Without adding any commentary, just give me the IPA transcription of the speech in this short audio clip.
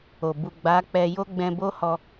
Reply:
o˨ b u˨ ɡ͡b a˨˦ k͡p ɛ˧ j o˦ ɡ͡b ɛ̃˧ b o˦ h ɔ˧

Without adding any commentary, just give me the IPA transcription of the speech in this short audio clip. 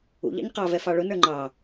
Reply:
ṵ ʎ ɑ̰ ɲ q ɑ v ɛ f ɑ ɭ ʊ n ə˞ ŋ͡ǃ ɑ

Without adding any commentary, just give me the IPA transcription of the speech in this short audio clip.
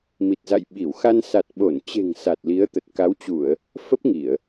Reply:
m i˨˩ t̚ z a̰˧˨ j ɓ i˧˩ w x a˧ n s a˨˩ t̚ ɓ o˧˩ n t͡ɕ e̤˨˩ ŋ s a˨˩ t̚ l i˨˦ ə̯ t̪ ə˨˩ t̚ k a˨˦ w t͡ɕ u˧˩˨ ə̯ | f ə˦˥ p̚ ŋ i˧˩˨ ə̯

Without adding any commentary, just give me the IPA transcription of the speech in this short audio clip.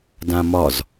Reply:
d ã m ɒ z

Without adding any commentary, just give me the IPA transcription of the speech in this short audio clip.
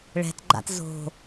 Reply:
ɭ ɛ̤ t ɡ͡ǃ a̰ t z o̤

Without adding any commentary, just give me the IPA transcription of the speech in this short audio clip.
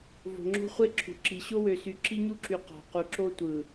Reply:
v o̤˨ ŋ͡ǁ o̤˦ χʷ e˦ ǁʰ ṳ˨ ǁ i˨ ɕ o˦ w ø˨ s y˨˦ ǁ i˦ ɲ u˦ ǁ y˨ q ɑ̤˨ q u˨ ǁ o˦ tʷ ɯ˨

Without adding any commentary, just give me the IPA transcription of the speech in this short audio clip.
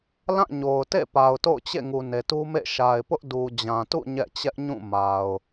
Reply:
l ã˦˨ ɲ o˨ ʊ̯ t ḛ˦˨ p a˨ ʊ̯ t o̰˦˨ ʊ̯ t͡ɕ ḛ˦˨ ŋ u˨ n e˨ t u˦ m ḛ˦˨ ʃ a˨ ɪ̯ p ʊ˦ ʔ d u˨ d͡ʑ ã˨ t ṵ˦˨ ɲ ɛ̰˦˨ t͡ɕ ɛ˦ ʔ ɲ ũ˦˨ m a˨ ʊ̯

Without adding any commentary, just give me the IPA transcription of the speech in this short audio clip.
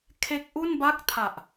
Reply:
kʰ e˦˥ k̚ ʔ u˥˩ n b a˥˩ k̚ tʰ a˨˩ ʔ

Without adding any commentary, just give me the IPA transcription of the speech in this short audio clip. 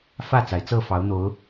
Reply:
f ä˥˨ t͡s a˩ ɪ̯ t͡s ɤ˥˨ f ɑ˨˦ ʊ̯ n̪ o˨˦ ʊ̯

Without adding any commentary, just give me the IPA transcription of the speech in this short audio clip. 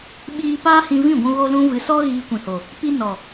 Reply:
ɓ iː˧ p aː˦ h ĩ˧ v ĩ˦˨ ɡʷ ũ˧ ɣ o˧ l ũ˧ v ɨ˨ s ɔ˦ ɣ iː˧ kʷ ĩ˨ h o˨ | p i˧ n ɔ˨

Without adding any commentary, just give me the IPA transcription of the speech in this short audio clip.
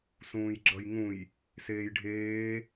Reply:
s ũː j ɡ͡ǁ ʌ j ŋ ũ j | s eː j ɖʱ eː

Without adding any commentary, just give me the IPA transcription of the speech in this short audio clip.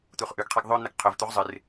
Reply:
t̪ u χ ʔ ʉ ɡ qʰ e ɡ ðˤ ɵ n̪ ɨ ɡ qʰ ɵ v t̪ u ʁ zˤ ɨ r

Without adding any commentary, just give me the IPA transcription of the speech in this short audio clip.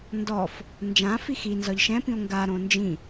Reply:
n d ɔ f | n d͡ʒ ã f i x i n z ɒ ʎ ʃ ɛ̃ p ĩ o̯ ŋ ɡ a ɾ õ n d͡ʒ ĩ

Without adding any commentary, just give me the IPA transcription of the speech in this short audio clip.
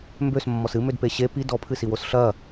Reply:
m b ø s mː ɔ s ɨ m ø d p e ɕ e p i d ɔ pʰ ɨ s i w o s ɬ ɐ

